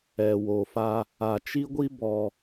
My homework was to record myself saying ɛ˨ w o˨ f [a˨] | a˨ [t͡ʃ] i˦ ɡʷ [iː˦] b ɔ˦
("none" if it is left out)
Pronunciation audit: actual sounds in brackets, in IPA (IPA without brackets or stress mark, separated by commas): a˦, t͡ʃ, i˦